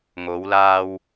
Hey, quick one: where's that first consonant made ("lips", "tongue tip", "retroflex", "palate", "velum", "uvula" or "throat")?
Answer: velum